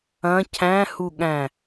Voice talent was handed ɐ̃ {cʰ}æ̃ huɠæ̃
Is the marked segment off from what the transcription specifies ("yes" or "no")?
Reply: no